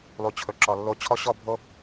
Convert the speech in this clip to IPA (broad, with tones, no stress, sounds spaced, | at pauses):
lˠ u˨ t͡ɕʰ ɵ˨ ǁ ɔ˨ lː o˦ t͡ɕʰ ɔ˦ ɕ ɔ˦ bʱ o˦